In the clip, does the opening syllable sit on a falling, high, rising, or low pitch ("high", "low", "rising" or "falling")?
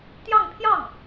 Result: falling